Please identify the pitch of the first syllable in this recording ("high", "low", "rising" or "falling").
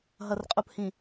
low